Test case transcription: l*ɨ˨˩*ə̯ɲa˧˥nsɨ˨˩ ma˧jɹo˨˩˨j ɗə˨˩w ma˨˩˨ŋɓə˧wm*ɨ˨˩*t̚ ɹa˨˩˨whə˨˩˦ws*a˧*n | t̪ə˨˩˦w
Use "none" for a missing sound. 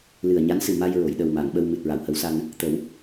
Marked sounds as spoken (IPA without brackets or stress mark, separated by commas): ɨ˨˩, ɨ˨˩, a˧